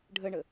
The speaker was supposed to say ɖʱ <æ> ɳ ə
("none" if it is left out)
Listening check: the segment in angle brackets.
ə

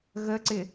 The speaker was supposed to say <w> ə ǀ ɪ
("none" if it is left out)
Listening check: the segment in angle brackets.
ɣ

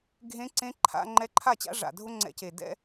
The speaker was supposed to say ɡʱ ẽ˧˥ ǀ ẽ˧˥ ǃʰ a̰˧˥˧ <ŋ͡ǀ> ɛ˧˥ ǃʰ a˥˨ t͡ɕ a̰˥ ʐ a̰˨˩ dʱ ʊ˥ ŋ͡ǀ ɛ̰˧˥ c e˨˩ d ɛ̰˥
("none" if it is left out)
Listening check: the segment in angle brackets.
ŋ͡ǃ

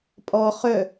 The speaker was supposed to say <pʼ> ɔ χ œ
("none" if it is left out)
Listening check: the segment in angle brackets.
pʼ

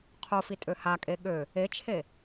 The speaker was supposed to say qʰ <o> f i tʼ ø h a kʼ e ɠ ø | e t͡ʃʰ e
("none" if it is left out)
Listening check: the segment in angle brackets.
o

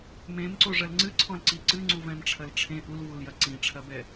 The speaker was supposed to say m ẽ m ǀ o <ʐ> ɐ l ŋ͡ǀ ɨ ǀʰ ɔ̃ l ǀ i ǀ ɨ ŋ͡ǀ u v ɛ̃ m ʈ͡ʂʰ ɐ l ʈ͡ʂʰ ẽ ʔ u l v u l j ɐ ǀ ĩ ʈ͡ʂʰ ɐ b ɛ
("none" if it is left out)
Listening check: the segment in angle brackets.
ʐ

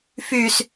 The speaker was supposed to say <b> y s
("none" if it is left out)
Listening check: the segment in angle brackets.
f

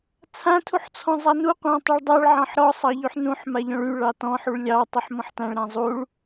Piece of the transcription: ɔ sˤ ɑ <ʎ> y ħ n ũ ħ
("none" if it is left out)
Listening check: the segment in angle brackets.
ʎ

